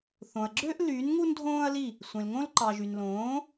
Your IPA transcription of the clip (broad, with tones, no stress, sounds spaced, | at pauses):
θ õ˨ ɐ̯ ɡ͡ǁ ø˥ ʔ l y˨˥ n ŋ u˥ n dʱ õː˥ ɐ̯ l i˥˨ | sʷ ẽ˨ l ŋ õ˥ l ǃ ɑ˨ ʒ y˨ n l õː˨˥